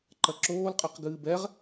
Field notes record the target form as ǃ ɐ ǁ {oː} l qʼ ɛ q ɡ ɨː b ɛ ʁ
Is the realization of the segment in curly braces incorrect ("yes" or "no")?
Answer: no